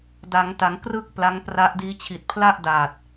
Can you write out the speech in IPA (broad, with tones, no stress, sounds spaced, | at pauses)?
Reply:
d a˩˦ ŋ t a˩˦ ŋ k r ɯ˥˩ k̚ p l a˦˥ ŋ p r a˦˥ ʔ d iː˦˥ t͡ɕʰ i˨˩ t̚ pʰ l a˥˩ ʔ d aː˨˩ t̚